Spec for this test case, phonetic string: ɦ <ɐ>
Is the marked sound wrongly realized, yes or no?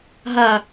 no